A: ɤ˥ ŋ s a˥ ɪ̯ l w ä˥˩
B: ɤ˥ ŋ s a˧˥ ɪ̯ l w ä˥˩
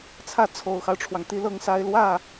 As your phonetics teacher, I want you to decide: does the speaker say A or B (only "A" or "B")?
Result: A